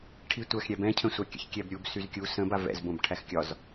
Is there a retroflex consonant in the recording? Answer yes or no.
yes